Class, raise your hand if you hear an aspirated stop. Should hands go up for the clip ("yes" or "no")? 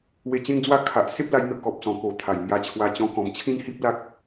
yes